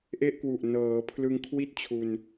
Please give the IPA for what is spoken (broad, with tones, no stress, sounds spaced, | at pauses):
ʔ e˥˩ ʔ k w u˨˩ ʔ n ɤː˩˦ pʰ l ɯ˧ ŋ kʰ w i˥˩ t̚ t͡ɕʰ u˧ n